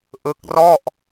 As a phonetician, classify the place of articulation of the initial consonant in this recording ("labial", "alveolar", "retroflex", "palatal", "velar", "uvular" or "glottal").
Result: glottal